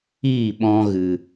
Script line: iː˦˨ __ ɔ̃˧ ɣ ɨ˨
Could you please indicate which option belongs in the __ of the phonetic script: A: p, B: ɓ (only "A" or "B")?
B